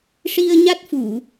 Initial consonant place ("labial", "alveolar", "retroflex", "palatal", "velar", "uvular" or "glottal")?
retroflex